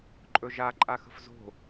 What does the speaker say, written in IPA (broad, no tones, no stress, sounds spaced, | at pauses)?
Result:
ǃʼ ɵ ʒ a ǃʼ a x ə̤ f z o̤